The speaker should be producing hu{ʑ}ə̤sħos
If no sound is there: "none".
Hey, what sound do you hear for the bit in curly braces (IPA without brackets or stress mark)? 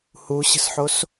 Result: ɕ